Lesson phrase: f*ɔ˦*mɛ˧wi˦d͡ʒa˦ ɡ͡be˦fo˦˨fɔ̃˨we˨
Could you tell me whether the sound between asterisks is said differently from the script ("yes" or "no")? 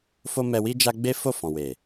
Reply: yes